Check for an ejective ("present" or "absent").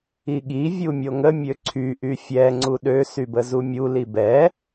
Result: absent